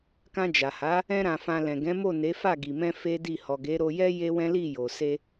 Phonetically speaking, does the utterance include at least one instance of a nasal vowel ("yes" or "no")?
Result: yes